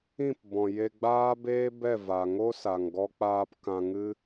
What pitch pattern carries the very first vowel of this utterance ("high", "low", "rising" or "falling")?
falling